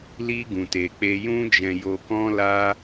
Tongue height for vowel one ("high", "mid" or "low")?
high